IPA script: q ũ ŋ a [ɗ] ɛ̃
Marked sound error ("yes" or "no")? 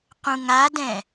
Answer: yes